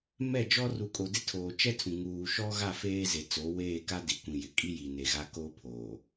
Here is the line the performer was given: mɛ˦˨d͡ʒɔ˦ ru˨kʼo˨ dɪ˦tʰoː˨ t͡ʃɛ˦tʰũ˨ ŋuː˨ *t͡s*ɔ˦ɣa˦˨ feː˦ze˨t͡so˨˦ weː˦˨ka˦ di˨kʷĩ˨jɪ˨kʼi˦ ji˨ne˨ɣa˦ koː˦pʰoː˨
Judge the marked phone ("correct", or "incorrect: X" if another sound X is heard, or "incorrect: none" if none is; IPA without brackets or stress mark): incorrect: ʃ